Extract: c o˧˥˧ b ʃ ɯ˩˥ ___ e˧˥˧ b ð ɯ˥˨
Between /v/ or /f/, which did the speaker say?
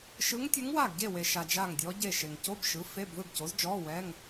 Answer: f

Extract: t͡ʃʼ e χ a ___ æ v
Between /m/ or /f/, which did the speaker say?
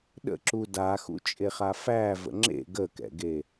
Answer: f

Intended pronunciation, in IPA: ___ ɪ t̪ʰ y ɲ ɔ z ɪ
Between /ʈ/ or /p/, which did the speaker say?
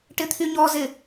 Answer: ʈ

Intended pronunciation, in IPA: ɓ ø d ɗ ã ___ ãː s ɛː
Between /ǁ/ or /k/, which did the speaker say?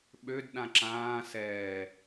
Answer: ǁ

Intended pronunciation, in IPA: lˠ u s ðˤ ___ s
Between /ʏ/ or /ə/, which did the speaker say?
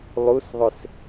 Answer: ʏ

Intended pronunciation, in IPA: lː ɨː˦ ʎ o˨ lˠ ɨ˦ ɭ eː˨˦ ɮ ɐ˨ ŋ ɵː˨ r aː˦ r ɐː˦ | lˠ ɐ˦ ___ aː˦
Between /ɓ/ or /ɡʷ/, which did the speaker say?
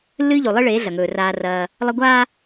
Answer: ɡʷ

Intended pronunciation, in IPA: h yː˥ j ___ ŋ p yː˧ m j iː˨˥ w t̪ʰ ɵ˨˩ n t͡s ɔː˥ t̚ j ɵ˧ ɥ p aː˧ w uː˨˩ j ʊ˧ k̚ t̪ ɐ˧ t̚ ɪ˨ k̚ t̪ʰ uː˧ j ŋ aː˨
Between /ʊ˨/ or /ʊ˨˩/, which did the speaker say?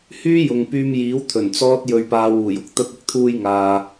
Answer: ʊ˨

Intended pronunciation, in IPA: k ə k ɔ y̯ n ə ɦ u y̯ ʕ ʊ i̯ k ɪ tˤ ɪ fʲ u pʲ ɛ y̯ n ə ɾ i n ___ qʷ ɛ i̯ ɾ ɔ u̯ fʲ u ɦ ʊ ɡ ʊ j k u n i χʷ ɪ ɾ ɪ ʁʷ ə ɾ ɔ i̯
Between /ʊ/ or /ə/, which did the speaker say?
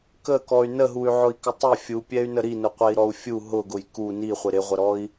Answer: ʊ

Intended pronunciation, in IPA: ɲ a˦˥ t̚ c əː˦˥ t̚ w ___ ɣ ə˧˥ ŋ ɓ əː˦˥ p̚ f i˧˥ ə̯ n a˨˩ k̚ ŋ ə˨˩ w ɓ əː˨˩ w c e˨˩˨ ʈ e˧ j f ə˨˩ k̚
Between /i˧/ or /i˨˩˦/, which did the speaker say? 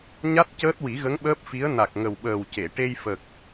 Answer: i˨˩˦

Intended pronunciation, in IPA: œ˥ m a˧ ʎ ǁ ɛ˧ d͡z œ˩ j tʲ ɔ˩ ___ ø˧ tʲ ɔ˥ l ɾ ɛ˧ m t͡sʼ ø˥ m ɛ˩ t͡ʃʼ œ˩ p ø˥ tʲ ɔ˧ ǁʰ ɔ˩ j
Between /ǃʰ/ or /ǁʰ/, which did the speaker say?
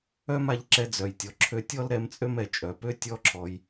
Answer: ǁʰ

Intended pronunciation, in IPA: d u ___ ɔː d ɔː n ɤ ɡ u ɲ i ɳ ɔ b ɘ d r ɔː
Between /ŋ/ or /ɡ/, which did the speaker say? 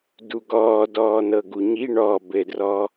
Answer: ɡ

